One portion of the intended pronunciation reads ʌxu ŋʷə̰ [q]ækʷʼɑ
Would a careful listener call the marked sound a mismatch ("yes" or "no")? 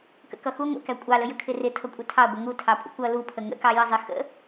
yes